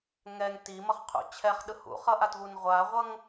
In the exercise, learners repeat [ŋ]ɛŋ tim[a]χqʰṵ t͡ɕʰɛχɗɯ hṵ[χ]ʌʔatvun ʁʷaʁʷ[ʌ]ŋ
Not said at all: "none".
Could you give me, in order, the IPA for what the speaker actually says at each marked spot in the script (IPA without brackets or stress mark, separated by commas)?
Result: ŋ, ʌ, χ, ʌ